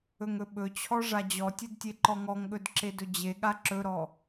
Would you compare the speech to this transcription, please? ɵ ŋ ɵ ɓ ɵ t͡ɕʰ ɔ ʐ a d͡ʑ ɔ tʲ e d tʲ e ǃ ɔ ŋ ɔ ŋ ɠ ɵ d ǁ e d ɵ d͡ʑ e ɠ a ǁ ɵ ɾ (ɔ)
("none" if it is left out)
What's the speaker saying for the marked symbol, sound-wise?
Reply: ɔ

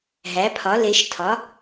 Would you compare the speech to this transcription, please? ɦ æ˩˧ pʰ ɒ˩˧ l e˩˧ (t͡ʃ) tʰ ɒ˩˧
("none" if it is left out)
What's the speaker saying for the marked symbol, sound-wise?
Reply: ʃ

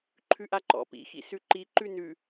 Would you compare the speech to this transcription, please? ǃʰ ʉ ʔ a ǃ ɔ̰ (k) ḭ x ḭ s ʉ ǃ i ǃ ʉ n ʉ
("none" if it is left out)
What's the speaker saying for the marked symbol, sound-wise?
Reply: p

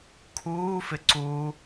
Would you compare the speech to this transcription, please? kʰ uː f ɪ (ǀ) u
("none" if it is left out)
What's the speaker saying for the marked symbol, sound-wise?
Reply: ǀ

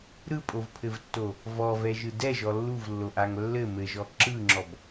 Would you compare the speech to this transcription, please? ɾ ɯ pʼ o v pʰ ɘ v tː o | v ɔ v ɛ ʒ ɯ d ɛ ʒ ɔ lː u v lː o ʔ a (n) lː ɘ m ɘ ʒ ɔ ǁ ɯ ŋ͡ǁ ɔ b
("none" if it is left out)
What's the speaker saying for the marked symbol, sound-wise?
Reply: ŋ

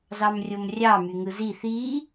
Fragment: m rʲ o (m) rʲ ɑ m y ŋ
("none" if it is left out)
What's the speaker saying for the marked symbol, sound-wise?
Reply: m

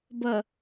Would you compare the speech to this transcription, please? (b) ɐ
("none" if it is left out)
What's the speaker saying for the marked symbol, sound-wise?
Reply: b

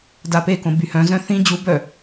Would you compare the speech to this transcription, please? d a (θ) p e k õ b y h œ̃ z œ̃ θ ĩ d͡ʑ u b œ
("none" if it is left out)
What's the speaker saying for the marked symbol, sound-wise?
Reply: none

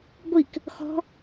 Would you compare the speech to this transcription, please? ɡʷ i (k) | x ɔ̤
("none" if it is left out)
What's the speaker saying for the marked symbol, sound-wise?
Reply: k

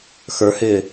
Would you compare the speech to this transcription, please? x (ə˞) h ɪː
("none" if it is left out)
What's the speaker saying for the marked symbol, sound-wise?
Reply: ə˞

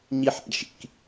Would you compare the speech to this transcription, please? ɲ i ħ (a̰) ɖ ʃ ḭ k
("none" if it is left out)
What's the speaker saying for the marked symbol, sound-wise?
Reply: a̰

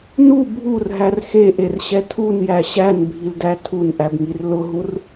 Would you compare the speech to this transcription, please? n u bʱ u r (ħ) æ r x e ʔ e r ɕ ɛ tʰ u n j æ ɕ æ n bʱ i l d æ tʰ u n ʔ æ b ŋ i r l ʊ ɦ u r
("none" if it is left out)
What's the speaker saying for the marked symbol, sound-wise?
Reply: ɦ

